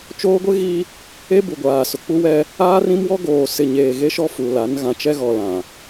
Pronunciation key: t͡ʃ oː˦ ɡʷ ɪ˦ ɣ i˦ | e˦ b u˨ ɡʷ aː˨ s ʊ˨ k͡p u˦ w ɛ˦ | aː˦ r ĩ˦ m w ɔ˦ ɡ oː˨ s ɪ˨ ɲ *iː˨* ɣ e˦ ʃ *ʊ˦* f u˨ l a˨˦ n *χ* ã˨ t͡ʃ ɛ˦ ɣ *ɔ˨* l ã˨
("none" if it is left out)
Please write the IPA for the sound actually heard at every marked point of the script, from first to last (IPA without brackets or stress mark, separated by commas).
eː˨, ɔ˦, ɣ, ɔ˨